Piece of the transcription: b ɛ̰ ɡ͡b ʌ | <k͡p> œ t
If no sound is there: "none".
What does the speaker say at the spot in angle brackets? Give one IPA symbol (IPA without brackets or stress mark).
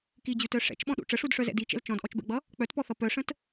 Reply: k͡p